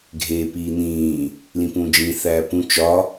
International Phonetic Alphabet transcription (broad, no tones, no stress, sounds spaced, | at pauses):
ɡʱ eː p iː n̪ ĩː | l ĩ p ũ d͡ʒ ĩ θ æː p ũ t͡ʃ ɒ